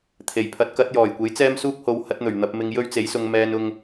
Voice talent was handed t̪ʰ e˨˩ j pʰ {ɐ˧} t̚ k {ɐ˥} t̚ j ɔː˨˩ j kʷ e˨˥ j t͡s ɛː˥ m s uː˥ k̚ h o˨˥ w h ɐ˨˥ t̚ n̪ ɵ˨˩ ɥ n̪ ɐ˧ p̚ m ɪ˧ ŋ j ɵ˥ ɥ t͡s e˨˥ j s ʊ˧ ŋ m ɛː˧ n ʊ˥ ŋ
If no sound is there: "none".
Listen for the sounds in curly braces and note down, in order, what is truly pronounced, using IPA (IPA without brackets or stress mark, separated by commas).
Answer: ɐ˨˥, ɐ˨˥